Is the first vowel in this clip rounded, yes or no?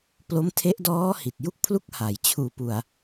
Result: yes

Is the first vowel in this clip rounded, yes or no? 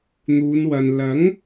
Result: yes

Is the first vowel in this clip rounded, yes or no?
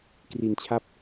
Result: no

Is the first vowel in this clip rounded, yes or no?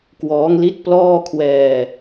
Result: yes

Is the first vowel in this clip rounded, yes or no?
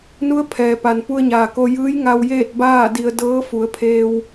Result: yes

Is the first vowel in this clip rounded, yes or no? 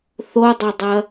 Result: yes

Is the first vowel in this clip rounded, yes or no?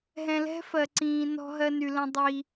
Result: no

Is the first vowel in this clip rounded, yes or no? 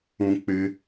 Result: yes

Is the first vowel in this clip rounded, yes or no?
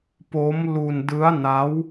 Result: yes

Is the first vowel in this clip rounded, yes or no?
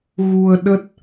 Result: yes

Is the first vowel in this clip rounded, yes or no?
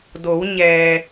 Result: yes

